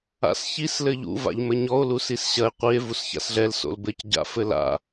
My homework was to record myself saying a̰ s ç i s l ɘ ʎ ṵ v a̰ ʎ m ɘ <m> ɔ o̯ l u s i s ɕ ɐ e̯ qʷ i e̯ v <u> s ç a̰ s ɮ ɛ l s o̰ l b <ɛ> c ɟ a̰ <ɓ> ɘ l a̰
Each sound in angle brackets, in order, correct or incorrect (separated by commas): incorrect, correct, incorrect, incorrect